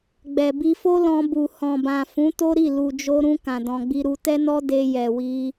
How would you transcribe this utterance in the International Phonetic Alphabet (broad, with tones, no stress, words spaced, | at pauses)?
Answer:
ɡ͡bɛ˨ bi˧fo˦lɔ̃˧ bu˨ hɔ̃˨bã˨ fũ˨˦to˦ɾi˦˨ lu˨d͡ʒo˧ɾũ˧ kã˨dɔ̃˧ɡ͡bi˦ɾu˦ tɛ˦nɔ˦ de˧jɛ˨wi˧